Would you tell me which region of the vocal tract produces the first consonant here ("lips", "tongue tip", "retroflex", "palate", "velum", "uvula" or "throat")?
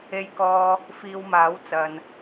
palate